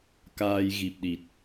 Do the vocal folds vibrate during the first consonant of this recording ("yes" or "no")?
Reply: no